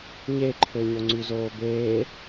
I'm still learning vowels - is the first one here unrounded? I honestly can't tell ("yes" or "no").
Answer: yes